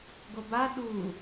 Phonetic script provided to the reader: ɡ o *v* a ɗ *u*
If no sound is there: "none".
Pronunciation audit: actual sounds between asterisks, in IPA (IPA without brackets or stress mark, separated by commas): b, u